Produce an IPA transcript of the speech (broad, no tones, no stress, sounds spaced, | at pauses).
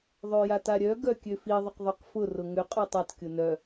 ðˤ ø j a t a ɾʲ œ ɡ œ kʲ ø f i ðˤ ʏ q ðˤ ø q f ʊ r ʊ ŋ ʏ qʼ œ tˤ a t kʲ ʊ n œ